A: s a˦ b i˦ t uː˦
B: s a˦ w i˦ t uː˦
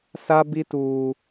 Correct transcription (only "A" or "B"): A